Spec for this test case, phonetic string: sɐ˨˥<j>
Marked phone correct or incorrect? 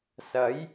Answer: correct